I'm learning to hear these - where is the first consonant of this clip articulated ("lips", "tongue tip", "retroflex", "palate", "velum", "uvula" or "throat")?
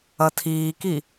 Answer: tongue tip